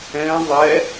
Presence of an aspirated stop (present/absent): absent